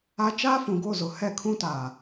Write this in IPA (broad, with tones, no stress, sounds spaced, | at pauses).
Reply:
a˦ t͡ʃ aː˦ f ũ˨ ɡ o˦˨ z ʊ˨ h ɛ˦˨ kʰ ũ˦ t aː˨